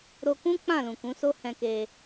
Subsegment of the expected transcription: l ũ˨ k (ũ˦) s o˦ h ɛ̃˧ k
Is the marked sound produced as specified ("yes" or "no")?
no